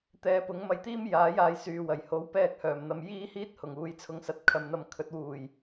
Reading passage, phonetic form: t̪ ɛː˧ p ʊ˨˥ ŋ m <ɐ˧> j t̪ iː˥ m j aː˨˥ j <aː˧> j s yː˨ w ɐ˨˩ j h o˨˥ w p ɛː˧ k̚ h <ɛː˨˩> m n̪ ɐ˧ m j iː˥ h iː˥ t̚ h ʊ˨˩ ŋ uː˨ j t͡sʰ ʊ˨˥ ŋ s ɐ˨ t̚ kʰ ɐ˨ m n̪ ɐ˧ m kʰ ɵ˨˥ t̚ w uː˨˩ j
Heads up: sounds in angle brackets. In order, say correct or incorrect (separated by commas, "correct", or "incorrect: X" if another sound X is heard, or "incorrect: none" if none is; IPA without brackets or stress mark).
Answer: correct, incorrect: aː˨˧, incorrect: œː˨˩